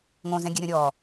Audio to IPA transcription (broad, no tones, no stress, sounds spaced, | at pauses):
ŋ õ z ɛ̃ ɡʲ ɛ ɾʲ ɔ̃ ɾʲ ɔ